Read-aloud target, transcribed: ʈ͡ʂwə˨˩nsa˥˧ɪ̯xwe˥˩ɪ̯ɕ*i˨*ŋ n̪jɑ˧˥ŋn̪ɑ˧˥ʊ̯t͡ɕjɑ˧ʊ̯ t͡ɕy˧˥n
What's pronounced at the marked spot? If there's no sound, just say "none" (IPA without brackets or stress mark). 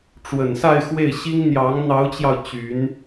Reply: i˥